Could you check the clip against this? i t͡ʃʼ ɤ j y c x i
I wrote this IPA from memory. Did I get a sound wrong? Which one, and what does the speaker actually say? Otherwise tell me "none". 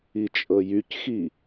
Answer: none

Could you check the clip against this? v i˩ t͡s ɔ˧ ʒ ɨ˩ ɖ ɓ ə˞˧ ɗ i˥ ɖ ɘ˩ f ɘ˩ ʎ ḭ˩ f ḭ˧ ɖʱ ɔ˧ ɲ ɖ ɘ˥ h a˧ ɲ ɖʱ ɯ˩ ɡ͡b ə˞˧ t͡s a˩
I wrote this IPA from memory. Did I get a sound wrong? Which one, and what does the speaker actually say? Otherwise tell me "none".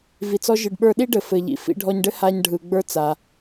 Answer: none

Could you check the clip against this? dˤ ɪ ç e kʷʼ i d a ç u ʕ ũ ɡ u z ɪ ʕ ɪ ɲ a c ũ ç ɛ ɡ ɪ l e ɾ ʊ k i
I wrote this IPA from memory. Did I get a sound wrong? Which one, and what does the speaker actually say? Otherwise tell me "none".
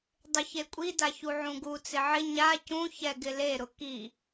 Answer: z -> t͡s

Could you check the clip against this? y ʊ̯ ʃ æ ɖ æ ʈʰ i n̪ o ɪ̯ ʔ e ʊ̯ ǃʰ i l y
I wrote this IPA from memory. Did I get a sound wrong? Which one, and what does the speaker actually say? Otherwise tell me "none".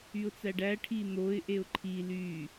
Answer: ʃ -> t͡s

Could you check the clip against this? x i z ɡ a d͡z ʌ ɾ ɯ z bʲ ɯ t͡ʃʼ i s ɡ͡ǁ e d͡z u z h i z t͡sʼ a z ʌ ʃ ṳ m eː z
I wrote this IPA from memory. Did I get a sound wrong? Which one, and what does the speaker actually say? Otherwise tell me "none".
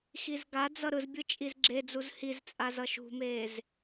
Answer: s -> z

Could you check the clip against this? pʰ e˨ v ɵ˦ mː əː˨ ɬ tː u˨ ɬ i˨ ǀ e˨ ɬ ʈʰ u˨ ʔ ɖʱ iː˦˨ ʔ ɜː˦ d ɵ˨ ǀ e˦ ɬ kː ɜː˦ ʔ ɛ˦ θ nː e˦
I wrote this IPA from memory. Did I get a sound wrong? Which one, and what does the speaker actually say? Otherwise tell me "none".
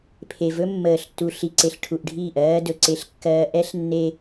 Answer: θ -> ɬ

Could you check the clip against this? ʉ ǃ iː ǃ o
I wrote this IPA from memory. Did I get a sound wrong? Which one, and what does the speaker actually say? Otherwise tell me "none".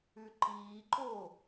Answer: none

